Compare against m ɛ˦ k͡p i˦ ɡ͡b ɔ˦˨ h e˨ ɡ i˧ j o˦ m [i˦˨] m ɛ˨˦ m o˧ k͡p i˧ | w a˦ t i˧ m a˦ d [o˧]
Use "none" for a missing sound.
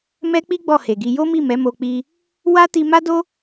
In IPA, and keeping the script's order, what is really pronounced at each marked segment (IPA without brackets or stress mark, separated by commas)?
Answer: i˦˨, o˦